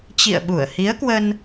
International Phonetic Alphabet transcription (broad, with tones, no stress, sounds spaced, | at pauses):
t͡ɕ ḭ˧˨ ə̯ ɓ u˧˩ ə̯ h i˨˦ ə̯ k w ə˧ n